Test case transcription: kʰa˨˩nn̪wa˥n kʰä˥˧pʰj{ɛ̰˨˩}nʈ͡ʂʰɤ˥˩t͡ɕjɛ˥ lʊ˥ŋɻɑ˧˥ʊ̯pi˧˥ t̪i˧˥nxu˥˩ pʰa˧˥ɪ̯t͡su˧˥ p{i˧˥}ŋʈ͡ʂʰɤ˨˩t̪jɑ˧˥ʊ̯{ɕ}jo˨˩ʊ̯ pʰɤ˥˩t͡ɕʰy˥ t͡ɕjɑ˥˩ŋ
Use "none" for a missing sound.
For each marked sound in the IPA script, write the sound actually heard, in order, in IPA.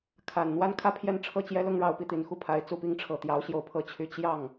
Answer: ɛ˥˧, i˧˥, ɕ

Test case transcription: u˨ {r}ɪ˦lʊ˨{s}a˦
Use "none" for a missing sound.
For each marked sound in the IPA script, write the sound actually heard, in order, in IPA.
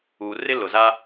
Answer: r, z

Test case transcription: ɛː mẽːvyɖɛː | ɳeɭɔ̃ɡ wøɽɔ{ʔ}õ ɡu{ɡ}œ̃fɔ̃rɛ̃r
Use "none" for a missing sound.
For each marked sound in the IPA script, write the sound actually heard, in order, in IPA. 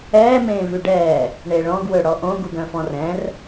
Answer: ʔ, ɡ

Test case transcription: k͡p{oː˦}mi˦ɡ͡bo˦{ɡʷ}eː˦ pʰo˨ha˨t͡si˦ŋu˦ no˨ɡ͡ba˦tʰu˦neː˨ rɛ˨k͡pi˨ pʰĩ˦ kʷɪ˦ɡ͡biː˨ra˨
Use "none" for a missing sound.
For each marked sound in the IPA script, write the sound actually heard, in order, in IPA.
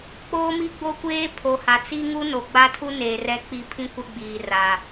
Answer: oː˦, kʷ

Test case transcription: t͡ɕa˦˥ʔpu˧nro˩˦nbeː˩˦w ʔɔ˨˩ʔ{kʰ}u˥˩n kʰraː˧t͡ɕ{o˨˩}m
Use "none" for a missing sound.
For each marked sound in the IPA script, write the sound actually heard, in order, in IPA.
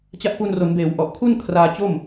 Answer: kʰ, o˥˩

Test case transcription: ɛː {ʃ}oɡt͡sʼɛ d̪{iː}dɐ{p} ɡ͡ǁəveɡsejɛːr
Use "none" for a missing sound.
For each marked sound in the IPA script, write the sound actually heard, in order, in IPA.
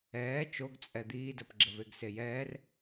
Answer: t͡ʃ, iː, p

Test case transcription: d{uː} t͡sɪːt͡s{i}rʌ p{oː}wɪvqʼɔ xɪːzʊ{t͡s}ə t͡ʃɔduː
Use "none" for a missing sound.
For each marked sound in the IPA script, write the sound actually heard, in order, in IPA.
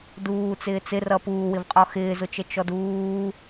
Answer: uː, ɪ, uː, t͡ʃ

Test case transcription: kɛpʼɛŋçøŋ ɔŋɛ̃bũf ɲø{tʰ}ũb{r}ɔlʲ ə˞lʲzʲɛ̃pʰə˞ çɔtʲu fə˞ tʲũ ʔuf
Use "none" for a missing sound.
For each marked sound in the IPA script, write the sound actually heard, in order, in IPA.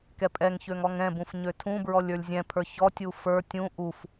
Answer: tʰ, ɹ

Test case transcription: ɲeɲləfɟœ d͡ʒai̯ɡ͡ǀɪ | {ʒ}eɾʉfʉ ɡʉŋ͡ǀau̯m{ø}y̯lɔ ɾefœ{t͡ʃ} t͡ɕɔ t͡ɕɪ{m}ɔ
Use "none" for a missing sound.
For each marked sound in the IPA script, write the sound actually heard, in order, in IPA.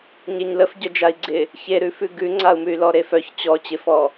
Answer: ç, ʉ, ç, f

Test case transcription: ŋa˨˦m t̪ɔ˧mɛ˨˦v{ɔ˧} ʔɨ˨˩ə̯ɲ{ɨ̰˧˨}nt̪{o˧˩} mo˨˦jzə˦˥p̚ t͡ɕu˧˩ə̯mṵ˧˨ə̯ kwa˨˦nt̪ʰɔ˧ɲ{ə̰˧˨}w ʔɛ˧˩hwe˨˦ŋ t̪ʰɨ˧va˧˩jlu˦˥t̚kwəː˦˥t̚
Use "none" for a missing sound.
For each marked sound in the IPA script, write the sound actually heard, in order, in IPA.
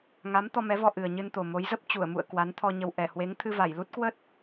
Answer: ɔ˧, ɨ˧, o˨˩, ə˧

